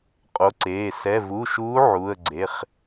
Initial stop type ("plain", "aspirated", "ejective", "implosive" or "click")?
ejective